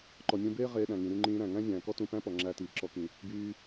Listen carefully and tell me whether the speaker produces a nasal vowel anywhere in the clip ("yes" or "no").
yes